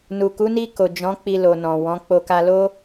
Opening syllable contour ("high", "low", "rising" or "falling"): low